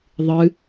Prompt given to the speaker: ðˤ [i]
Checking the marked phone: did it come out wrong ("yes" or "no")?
yes